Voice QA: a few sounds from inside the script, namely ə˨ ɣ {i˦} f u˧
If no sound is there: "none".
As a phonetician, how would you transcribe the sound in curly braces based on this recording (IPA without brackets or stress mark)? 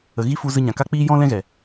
i˦